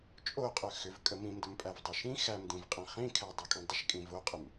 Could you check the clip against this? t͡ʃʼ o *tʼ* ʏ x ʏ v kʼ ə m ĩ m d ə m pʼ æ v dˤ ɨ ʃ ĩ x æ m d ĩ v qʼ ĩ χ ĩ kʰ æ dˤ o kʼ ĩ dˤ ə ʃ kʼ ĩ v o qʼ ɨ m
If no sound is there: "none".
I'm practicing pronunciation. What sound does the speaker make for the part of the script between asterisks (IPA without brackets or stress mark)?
qʼ